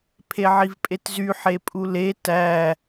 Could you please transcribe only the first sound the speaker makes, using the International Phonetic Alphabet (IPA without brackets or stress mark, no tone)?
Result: pʰ